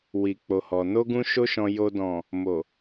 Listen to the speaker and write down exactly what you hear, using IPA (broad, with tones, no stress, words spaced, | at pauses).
wi˨k͡po˨hɔ˨ no˧ɡũ˧ ʃo˧ʃɔ̃˨ jo˨dɔ̃˨ | mo˨